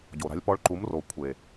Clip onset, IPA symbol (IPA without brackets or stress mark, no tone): ɟ